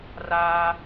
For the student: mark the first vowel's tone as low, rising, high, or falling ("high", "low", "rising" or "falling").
high